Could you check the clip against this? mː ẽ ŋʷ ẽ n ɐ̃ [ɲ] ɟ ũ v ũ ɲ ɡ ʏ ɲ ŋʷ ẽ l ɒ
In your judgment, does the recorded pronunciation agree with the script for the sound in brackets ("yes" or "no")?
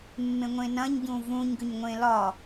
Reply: yes